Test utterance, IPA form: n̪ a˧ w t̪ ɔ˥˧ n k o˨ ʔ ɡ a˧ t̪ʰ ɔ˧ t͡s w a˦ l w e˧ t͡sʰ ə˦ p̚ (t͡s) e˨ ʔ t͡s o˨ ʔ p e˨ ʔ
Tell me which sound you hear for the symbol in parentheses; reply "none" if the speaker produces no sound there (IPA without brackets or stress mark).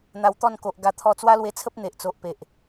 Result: n̪